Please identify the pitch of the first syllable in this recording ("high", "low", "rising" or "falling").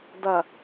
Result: low